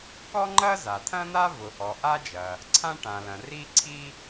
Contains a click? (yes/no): yes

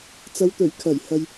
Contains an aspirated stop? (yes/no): yes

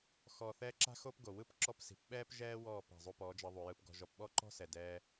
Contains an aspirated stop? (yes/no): no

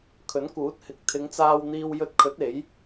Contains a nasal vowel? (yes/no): no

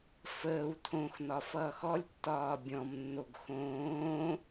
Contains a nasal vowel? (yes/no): yes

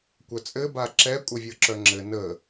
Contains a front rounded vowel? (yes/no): yes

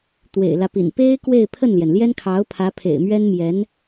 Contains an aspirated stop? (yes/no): yes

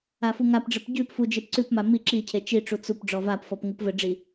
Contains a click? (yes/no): yes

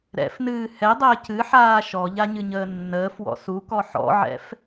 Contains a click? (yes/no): no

